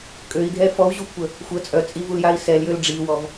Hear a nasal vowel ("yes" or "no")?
no